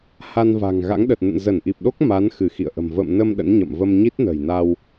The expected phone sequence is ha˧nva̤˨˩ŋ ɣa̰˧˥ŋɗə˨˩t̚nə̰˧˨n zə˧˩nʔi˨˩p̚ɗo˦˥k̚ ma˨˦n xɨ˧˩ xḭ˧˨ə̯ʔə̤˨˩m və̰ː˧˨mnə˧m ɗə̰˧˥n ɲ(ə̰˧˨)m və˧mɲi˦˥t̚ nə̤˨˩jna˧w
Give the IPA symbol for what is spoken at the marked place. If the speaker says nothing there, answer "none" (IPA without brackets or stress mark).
ə̰˧˨